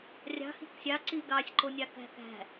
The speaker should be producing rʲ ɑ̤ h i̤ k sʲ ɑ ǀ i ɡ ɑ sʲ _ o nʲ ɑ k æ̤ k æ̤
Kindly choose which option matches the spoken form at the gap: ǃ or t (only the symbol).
ǃ